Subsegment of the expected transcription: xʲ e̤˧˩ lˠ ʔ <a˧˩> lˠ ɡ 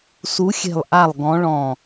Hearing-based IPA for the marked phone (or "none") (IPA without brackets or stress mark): a˧˩